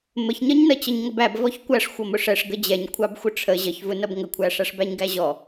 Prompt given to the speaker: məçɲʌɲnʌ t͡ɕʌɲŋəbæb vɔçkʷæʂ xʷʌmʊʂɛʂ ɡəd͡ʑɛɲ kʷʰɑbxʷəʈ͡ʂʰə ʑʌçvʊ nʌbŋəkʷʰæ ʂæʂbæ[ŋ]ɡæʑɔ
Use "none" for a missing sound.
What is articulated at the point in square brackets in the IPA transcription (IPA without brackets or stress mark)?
ɲ